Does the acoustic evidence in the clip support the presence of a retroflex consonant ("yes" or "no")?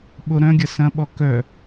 no